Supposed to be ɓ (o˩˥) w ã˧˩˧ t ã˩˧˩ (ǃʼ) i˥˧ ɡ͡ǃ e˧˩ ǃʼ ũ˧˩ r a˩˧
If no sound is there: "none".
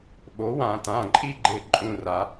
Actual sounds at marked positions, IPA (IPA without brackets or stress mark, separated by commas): o˩˥, ǃʼ